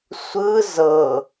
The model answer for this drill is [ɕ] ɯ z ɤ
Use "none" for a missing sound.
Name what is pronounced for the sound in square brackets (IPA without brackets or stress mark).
sʷ